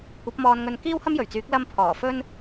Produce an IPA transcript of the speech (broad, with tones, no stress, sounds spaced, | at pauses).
kʷ ɐ˨˥ p̚ m ɔː˧ n ŋ ɵ˧ n k iː˥ w h ɐ˥ m j ɵ˨˩ ɥ t͡s yː˨˥ k̚ l ɐ˧ m pʰ ɔː˨˩ f ɵ˥ n